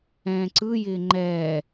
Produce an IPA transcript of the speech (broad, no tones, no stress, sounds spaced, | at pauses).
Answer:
ɛ̃ː ǀ ɯ j ɪː ŋ͡ǃ ɛː